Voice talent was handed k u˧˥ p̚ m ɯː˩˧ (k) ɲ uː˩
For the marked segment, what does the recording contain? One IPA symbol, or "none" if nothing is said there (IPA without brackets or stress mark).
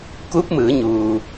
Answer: none